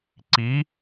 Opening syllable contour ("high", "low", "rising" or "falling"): rising